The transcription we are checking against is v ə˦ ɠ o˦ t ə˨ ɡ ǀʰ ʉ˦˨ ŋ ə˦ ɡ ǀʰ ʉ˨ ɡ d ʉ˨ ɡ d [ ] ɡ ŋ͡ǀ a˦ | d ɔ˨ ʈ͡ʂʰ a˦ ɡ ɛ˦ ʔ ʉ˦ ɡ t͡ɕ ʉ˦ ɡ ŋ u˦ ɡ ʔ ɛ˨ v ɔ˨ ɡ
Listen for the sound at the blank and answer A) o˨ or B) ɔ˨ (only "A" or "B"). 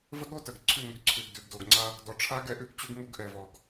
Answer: A